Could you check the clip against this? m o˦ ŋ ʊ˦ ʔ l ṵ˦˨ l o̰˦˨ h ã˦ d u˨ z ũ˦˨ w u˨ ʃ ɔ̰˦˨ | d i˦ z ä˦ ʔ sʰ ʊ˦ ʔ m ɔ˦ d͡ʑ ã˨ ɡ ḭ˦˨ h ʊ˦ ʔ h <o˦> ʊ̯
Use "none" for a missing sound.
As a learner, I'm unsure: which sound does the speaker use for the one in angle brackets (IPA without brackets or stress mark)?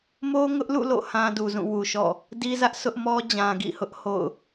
o̰˦˨